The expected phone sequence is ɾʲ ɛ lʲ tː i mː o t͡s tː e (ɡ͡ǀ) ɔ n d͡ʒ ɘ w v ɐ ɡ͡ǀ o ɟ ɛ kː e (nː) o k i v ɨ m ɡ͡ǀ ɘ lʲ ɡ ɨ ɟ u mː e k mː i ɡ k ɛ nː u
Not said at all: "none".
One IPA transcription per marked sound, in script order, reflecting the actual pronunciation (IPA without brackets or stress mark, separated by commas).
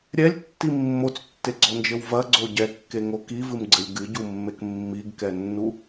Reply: ɡ͡ǀ, ŋ